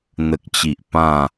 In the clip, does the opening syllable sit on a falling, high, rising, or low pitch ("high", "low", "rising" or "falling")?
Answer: low